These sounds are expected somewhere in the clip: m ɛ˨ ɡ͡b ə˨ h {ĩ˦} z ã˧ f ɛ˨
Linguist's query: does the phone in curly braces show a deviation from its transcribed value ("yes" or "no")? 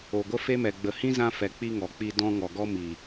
no